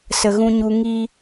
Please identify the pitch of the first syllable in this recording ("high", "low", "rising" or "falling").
low